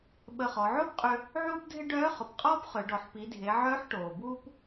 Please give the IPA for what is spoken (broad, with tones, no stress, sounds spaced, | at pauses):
ɓ ə˧ χ ɔ˩˧ ʕ oː˥ p qʼ ʏ˧ | ʕ uː˥ p dʱ ɪ˥ ɖ œː˧˥ χ ʊ˩˧ p qʼ ɔː˥ p χ ø˩˧ ɖ ɔ˩˧ ħ p i˩˧ dʱ e˩˧ ʕ œː˧˥ ħ ʈ oː˩ b uː˧ p